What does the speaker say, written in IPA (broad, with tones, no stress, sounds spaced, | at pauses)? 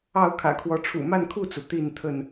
ɑ˥˨ ʊ̯ kʰ ä̰˨˩ kʰ w ɔ˨˦ ʈ͡ʂʰ ṵ˨˩ m a˥˨ n kʰ u˥˨ t͡s u˩ t̪ i˥˨ n t̪ʰ ə˥˨ n